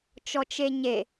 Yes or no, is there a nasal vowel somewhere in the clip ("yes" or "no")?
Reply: no